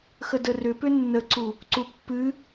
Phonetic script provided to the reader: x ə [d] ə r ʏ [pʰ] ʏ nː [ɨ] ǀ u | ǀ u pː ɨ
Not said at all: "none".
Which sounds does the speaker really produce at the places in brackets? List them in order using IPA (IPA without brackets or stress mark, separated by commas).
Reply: d, p, ə